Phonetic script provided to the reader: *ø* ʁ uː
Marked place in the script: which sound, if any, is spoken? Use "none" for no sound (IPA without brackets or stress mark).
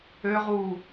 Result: ø